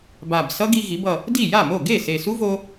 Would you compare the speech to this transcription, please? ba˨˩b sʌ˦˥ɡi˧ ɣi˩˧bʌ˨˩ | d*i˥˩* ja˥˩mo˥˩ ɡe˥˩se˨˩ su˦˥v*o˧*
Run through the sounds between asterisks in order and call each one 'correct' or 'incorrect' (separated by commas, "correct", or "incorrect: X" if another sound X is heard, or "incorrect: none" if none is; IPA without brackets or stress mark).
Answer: correct, correct